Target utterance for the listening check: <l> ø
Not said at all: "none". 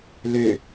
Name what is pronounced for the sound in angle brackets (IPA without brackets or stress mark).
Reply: l